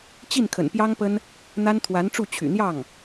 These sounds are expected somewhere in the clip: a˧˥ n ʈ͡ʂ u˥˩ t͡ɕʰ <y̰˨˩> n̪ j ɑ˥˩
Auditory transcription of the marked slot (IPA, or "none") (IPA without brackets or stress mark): y̰˨˩